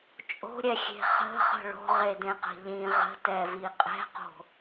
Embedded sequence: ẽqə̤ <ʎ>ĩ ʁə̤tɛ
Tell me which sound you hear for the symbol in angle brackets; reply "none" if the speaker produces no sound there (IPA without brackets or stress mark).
ʎ